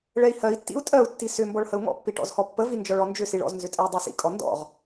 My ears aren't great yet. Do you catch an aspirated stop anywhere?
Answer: no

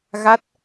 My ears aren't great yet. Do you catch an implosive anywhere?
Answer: no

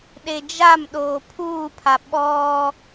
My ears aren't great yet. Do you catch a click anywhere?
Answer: no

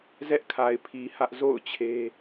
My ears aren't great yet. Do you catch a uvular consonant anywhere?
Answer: no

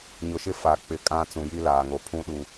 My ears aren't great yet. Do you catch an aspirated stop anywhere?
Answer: yes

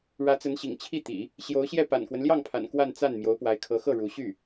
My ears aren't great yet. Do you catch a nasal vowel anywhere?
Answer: no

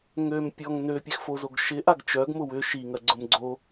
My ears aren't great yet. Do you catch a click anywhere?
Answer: yes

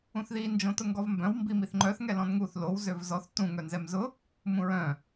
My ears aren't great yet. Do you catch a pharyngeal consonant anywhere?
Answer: no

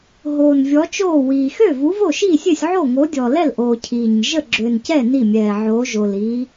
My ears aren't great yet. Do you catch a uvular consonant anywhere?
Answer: no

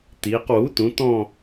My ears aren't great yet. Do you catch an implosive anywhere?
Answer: no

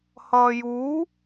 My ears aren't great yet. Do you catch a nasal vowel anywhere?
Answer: no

